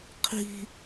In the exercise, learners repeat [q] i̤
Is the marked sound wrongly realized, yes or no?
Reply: yes